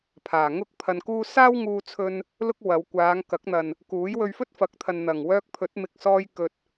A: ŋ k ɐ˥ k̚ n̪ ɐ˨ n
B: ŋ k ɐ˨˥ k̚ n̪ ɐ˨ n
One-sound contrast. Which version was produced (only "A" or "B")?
B